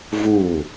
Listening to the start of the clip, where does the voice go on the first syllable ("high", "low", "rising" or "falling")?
falling